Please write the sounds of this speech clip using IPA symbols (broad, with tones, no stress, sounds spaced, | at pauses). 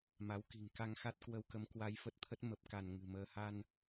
m a˨˦ w k i̤˨˩ ŋ k a˧ ŋ x a˦˥ t̚ k w ə˧ w k ə˨˦ m k w a˧ j f ə˦˥ t̚ t̪ʰ ə˦˥ t̚ m ə˨˩ p̚ k a˧˩ n ŋ ɨ̤˨˩ m əː˧ h a˧ n